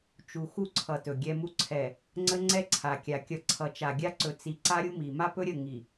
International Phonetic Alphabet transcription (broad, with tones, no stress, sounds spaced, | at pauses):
t͡ʃ u˨ x u˦ ǀʰ ʌ˨ t ɵ˨ ɡʲ ɛ˦ m u˦ ǀʰ ɛ˨ | ŋ͡ǀ ə˦ ŋ͡ǀ ɛ˦ ǀʰ a˨ kʲ a˨ kʲ ʌ˨ ǀʰ ʌ˨ t͡ʃ a˨ ɡʲ a˦ ǀ ɵ˨ t͡s i˨ ǀ a˦ ɾʲ u˦ m i˨ m a˦ p ɵ˦ ɾʲ ə˦˨ ŋ i˨